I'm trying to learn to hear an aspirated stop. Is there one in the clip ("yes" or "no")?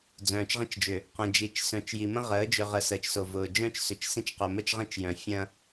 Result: no